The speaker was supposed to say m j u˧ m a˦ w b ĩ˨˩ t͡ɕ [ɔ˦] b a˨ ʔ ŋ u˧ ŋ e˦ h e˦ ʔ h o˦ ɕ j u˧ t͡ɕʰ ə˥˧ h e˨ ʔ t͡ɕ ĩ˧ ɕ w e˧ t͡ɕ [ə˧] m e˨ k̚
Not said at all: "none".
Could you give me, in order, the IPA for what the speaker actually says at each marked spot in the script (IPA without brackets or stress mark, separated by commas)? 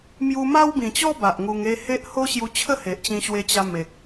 ɔ˦, a˧